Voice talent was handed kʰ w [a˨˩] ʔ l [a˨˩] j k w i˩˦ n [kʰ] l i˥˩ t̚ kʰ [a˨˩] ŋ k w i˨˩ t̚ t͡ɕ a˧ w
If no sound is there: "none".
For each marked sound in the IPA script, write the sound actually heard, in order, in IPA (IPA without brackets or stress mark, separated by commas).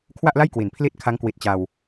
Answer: a˥˩, a˥˩, pʰ, a˦˥